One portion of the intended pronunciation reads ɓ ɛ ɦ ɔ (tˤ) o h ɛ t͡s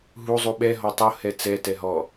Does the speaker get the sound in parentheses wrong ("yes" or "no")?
no